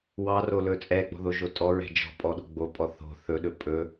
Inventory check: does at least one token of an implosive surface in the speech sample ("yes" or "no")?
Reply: yes